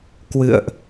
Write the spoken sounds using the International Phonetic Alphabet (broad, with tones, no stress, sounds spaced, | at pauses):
k w ɨ̰˧˨ ə̯ ʔ